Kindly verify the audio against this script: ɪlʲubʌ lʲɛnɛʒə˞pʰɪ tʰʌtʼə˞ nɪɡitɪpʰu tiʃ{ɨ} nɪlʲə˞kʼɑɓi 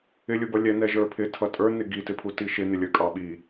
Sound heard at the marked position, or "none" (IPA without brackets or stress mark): ɪ